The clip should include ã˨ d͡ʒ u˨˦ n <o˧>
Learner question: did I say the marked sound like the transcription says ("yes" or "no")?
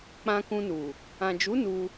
no